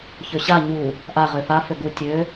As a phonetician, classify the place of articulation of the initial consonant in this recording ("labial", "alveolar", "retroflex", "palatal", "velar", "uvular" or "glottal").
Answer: palatal